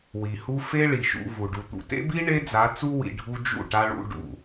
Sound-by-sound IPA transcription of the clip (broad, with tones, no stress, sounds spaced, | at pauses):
w i˨ h u˦ f e˦ ɭ i˨ ʃ ṵ˧ v u˨ ɖ u˨ t̪ ṵ˨ t ḛ˦ b i˦ ɳ e˦ d͡z a˨˦ t͡s u˦ w ḭ˧ ɖʱ u˦ d͡ʒ ṵ˦˨ ʈ a˦ ɭ ṵ˦ ɖ ṵ˦˨